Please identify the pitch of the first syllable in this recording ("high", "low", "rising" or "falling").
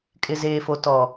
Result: low